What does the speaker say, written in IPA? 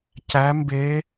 c æ˦˥ m b e˦˥

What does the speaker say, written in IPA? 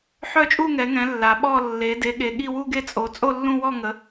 ħ œ˥˧ t͡ʃʼ u˥˧ ŋ ɛ˨˦ ŋ ɛ̃˨˦ lː a˨˦ ɓ ɔ˥˧ lː e˨˦ d e˨˦ ɠ e˨˦ ɠ i˥˧ w u˥˧ ɡ e˥˧ t͡sʼ o˨˦ t͡sʼ o˥˧ lː ũ˥˧ w ɔ˥˧ ŋ ə˨˦

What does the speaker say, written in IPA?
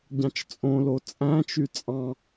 ɟ ɑ̃ t͡ʃ t͡sʼ õ l o t͡sʼ æ̃ t͡ʃ y t͡sʼ ɑ̃

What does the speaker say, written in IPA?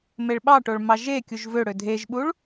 m e ɭ ɓ ɑ ʈ o ɭ m ɑ ʒ e kʲ u ʒ v ø ɽ ø dʱ e ʒ ɓ u ɭ

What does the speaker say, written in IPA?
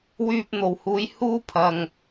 w yː˧ p̚ n̪ o˨˩ w h uː˨˥ j h uː˥ pʰ ɐ˨ ŋ

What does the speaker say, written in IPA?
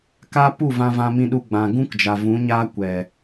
k a˦ p u˦˨ v ã˧ v ã˧ m ĩ˧ ɗ u˧ ɡ͡b ã˨ ɡ ũ˦ k d͡ʒ a˨ v ũ˨˦ ɲ aː˦ kʷ ɛ˨

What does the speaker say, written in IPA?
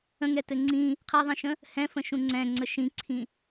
ə̃ ŋ ɛ t ɘ ŋ͡ǀ ĩ | qʰ ɛ ðˤ ĩ ʃ ə̃ | h ɛ̃ f ə̃ ʃ ũ ŋ͡ǀ ɛ̃ ŋ͡ǀ ə ʃ ĩ ǀʰ ĩ

